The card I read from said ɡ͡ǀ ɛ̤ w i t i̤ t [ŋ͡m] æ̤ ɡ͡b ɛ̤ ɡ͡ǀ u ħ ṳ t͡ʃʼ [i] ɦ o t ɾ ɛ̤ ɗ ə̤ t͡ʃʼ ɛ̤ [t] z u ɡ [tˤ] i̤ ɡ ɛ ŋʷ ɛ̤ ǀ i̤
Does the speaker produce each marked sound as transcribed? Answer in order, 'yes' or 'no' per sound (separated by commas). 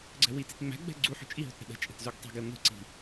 yes, yes, yes, yes